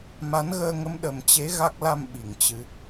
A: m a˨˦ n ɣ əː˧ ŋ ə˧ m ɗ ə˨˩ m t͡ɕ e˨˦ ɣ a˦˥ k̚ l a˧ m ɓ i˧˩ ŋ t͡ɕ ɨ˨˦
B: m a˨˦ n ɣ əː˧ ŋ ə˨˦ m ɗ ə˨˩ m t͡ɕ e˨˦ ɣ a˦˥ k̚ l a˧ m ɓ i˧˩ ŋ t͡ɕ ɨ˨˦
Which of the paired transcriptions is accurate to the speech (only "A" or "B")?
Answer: B